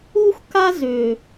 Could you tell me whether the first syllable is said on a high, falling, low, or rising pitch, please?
high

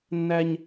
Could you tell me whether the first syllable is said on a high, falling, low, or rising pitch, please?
high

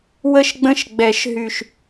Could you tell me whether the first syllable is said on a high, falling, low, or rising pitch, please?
falling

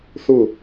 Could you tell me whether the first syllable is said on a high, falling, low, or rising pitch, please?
falling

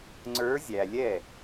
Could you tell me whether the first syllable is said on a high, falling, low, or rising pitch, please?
rising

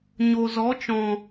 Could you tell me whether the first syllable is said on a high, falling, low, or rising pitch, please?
low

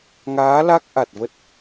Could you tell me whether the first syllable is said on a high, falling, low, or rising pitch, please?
rising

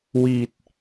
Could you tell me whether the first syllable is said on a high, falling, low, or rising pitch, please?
low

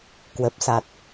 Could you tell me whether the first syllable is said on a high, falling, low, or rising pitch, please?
low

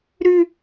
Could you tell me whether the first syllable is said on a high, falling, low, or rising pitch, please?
high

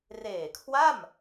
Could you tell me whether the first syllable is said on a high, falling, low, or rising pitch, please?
low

